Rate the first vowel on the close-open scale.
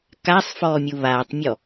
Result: open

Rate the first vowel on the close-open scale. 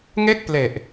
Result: mid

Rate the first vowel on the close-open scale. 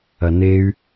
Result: open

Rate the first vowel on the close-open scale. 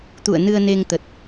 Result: close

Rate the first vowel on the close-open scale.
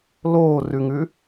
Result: mid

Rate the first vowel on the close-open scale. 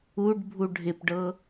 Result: close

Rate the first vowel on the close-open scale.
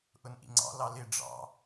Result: close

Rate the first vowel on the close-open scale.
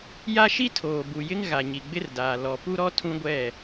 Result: open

